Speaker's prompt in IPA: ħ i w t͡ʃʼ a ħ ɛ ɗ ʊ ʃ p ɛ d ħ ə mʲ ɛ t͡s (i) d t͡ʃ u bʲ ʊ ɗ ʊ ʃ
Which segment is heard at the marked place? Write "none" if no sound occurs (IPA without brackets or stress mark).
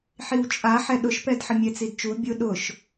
i